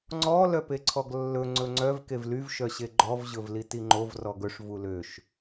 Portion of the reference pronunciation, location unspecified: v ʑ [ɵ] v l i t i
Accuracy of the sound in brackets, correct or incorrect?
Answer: correct